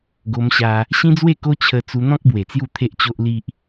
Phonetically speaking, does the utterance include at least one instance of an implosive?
no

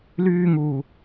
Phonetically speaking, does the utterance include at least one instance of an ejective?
no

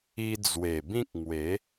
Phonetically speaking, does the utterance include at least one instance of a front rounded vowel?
no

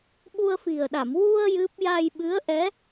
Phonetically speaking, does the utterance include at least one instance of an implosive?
yes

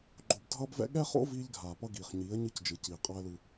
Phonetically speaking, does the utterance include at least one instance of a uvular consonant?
yes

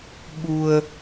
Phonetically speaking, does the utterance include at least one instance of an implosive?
yes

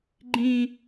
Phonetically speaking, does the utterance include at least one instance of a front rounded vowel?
no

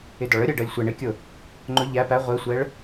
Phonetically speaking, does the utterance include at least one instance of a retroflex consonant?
yes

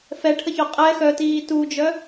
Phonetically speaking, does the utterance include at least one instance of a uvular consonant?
yes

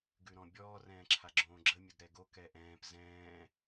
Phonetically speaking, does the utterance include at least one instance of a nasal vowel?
yes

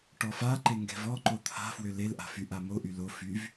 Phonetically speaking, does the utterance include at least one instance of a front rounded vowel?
yes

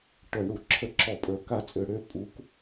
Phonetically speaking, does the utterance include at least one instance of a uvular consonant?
no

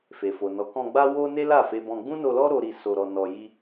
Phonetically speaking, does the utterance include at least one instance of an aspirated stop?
no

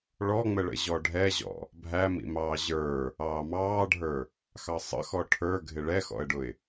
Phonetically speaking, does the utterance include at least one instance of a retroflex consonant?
yes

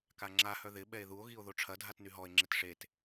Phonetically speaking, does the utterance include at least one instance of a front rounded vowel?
yes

